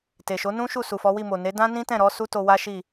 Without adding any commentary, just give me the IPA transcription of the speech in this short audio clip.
t e˨ ʃ o˨˦ n ũ˦ ʃ u˦˨ s u˨ f ɔ˨˦ w i˦˨ m o˨ n e˨˦ d ã˦ n ĩ˦ t ɛ̃˦˨ ɾ ɔ˨˦ s u˦ t o˧ w a˦ ʃ i˦˨

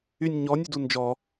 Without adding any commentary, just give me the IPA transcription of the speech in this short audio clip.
y nʲ ɲ ɔ nʲ y d u n d͡ʒ ɔ

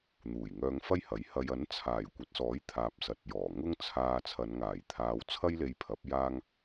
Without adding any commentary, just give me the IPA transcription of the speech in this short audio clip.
n̪ uː˨˩ j ŋ œː˧ ŋ f ɐ˥ j h ɐ˨˥ j h ɐ˨ j ɐ˨˥ n t͡sʰ aː˨˩ j kʷ ɐ˨˥ t̚ s ɔː˨˥ j t̪ʰ aː˨ p̚ s ɐ˨ t̚ j ɔː˨˩ ŋ ʊ˥ ŋ t͡sʰ aː˧ t͡sʰ ɐ˨˧ n ŋ aː˨˩ j t̪ʰ aː˨ w t͡sʰ ɐ˥ j l e˧ j pʰ ɐ˨˥ p̚ j aː˥ ŋ

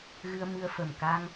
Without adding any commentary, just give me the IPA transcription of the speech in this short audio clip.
ɣ ɨ˧ ə̯ m ɨ˧ ə̯ f ə˨˩ m k a˧ ŋ

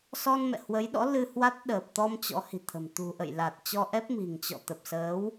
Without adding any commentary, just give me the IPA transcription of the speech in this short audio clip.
s ɔ˧ n m ɛ̰˧˨ h w ə˨˦ j ɗ ɔ̰˧˥ l ɨ˧ h w a˦˥ t̚ ɗ əː˨˩ p̚ t̪ ɔ˧ m t͡ɕ ɔ̰˧˥ h i̤˨˩ t̪ʰ ə̤˨˩ m t̪ ṳ˨˩ ʔ ə̰˧˨ j l a˨˩ t̚ t͡ɕ ɔ˧ ʔ ɛ˦˥ p̚ m i̤˨˩ ŋ t͡ɕ ɔ̰˧˨ t̪ ə˨˩ p̚ s əː˨˦ w

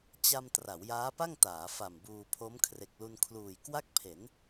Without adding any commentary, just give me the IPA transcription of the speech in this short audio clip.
t͡ɕ a˧ m t r a˩˦ w j aː˦˥ p a˥˩ ŋ t aː˩˦ f a˨˩ m b uː˧ pʰ o˦˥ m kʰ r e˨˩ k̚ l u˧ n kʰ l uː˨˩ j k w a˥˩ k̚ pʰ e˩˦ n

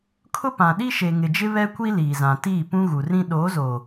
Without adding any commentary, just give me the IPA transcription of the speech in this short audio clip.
kʰ ʊ˦ p ã˨ ɗ i˦ ʃ e˨ ŋ ɪ˨ d͡ʒ ɪ˦ β ɛ˦ kʷ i˦ l iː˨ z ã˨ t iː˦˨ p ũ˦ ɣ u˨ r ĩ˦ ɗ oː˨˦ z oː˨

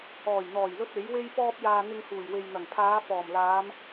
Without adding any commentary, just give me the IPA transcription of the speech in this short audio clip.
ɔː˨˩ j n̪ ɔː˨˩ j l ɵ˧ t̚ e˨˥ j w e˥ j p ɔː˧ p̚ j aː˨ n̪ ɪ˧ ŋ h uː˨˩ j w e˨ j n̪ ɐ˨˩ ŋ pʰ aː˨˧ f ɔː˨˩ m l aː˨˧ m

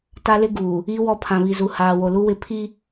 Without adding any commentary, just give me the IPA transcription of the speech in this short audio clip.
t a˦ l ɪ˦ ɡ uː˨ | i˦ w ɔ˦ pʰ ã˨ β i˨ z u˨ h aː˨ w o˨ l u˦ w ɪ˦ pʰ i˦

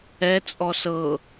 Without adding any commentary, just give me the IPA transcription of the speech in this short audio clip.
ɛ t͡sʼ ɔ s ɤ

